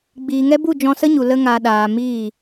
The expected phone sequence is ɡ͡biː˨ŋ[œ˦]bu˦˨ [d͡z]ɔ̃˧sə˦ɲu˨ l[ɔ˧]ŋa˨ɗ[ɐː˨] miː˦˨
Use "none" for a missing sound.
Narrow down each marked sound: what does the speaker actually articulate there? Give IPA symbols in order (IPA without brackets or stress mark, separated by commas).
ɛ˦, d͡ʒ, ə˧, aː˨